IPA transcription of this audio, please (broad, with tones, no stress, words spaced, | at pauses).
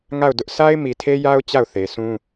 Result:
ŋa˦˨ʊ̯ dʊ˦ʔ sʰa˦ɪ̯ mi˨tʰe˦ja˦ʊ̯ t͡ɕa˦˨ʊ̯θe˨ sʰũ˦